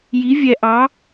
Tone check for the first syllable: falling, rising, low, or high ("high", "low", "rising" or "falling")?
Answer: rising